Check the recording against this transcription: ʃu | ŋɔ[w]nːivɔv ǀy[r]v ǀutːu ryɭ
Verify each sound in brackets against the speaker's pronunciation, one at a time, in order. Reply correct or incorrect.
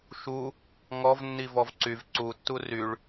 incorrect: v, incorrect: none

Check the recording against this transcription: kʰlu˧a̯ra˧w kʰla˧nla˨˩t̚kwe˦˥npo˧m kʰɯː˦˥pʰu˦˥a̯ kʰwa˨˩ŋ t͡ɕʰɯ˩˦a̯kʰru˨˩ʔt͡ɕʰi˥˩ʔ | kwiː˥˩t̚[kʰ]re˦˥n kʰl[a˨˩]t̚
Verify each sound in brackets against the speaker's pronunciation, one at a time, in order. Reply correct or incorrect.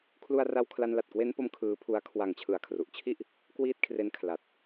correct, correct

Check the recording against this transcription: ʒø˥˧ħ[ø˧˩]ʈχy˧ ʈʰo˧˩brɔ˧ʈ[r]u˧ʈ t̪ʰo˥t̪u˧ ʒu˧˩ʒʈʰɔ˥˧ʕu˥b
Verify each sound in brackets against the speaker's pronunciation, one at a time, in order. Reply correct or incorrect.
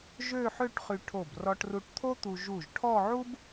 incorrect: ø˥˧, correct

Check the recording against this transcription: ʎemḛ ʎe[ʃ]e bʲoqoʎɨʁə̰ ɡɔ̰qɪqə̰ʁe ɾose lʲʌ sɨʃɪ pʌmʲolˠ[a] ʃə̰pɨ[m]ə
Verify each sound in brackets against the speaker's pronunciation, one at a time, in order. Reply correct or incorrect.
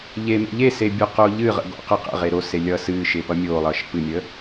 incorrect: s, incorrect: ʌ, incorrect: mʲ

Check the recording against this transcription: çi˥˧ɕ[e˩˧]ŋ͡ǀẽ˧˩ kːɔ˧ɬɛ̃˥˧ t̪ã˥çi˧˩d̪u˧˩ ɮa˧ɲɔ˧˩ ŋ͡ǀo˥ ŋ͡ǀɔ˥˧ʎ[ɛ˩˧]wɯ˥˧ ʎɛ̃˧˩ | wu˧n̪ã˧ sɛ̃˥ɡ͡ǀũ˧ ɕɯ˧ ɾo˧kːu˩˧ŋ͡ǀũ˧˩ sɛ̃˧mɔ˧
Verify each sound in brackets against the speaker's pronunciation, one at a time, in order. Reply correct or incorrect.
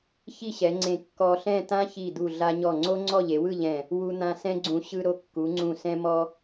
incorrect: ɛ˩˧, incorrect: e˩˧

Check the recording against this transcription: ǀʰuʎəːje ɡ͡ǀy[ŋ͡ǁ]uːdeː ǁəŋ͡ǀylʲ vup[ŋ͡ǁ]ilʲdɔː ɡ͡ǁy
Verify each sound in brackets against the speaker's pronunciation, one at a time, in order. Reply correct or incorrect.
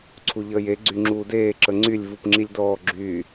correct, correct

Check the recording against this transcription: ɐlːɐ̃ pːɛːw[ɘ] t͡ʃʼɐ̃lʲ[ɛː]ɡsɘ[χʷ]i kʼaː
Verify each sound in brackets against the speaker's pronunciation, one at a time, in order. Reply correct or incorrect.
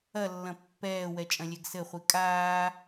incorrect: ɛ, incorrect: ɛ, correct

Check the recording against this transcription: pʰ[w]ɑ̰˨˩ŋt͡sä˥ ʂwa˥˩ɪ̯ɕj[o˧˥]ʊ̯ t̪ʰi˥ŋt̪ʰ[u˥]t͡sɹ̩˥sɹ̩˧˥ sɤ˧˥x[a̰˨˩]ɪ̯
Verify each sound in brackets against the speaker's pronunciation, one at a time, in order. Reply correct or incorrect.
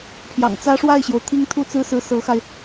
incorrect: j, incorrect: o˩, correct, incorrect: a˧

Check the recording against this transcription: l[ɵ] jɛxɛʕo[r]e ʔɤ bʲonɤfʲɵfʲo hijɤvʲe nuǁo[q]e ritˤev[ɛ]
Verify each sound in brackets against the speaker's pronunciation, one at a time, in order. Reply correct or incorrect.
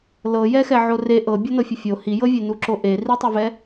incorrect: ɤ, correct, incorrect: ʔ, correct

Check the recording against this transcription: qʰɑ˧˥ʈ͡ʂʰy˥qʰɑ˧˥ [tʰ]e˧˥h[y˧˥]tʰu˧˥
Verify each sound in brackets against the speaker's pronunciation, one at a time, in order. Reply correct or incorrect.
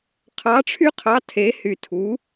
correct, incorrect: y˧

